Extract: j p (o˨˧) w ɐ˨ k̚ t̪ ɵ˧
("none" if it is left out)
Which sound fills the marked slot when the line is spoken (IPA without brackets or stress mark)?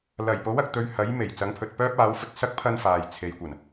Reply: o˨˥